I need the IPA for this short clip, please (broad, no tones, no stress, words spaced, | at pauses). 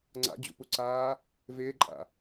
ŋ͡ǀa̰d͡ʑṵpuǀaː | vɪːǃʼa̰